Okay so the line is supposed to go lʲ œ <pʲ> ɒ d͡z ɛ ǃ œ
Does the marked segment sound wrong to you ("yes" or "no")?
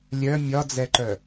yes